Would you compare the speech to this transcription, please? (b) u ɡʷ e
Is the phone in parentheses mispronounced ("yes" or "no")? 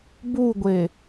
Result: no